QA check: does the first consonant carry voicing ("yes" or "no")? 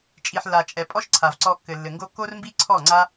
no